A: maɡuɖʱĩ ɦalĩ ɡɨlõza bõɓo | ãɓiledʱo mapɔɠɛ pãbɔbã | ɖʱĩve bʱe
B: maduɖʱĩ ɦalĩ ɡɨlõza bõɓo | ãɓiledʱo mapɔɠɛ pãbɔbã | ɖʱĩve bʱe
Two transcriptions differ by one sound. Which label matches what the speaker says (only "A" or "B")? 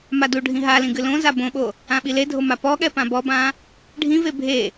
B